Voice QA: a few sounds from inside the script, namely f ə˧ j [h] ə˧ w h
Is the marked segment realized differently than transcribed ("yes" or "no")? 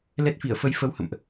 yes